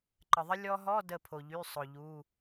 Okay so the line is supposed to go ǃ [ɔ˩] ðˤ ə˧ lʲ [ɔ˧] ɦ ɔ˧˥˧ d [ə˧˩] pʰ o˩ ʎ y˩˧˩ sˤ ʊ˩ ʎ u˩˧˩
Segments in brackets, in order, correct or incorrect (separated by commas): incorrect, correct, correct